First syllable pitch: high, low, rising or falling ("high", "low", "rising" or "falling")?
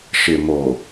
low